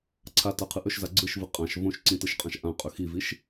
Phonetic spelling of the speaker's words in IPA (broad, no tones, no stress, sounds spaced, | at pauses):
ǀʰ a t a qʰ ɯ ʔ ɵ ʃ z a ɡ͡ǀ ɯ ʃ v ɯ qʼ ã ʃ v õ ʃ ǀ ĩ t ɯ ʃ qʼ ã ʃ ʔ ã qʼ ɵ x i v i ʃ